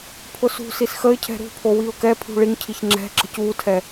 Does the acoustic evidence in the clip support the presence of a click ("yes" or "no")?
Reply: yes